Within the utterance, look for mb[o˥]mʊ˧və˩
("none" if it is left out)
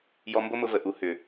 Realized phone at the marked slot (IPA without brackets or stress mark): o˥